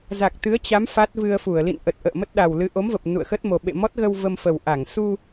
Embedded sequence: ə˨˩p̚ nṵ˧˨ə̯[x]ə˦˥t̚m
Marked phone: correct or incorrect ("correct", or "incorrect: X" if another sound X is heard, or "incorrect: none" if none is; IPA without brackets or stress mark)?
correct